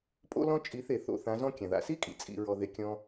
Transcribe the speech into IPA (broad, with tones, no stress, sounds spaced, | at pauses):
pʼ o̰˦ l ɔ̃˦ t͡ʃʼ i˨˦ θ e˨ θ o̰˨˦ θ ã˨˦ z ɔ̃˦ kʲ ã˨ ð a̰˧ s i˦ kʼ ḭ˨ t͡sʼ ḭ˧ ɹ ɔ˧ ð e˧ kʲ ɔ̃˦